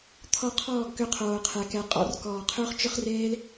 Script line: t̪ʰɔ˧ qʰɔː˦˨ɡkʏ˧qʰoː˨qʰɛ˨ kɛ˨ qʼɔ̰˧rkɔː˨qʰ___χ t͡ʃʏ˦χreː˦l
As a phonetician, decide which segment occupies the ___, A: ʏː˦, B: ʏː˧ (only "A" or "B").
A